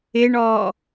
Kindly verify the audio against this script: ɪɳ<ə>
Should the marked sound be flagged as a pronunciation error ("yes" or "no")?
yes